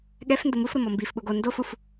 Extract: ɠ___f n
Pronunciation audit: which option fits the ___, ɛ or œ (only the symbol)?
ɛ